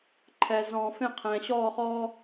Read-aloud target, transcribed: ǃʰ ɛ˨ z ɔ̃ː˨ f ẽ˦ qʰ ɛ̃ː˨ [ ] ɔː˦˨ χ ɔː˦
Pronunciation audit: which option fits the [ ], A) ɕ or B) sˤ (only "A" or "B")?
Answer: A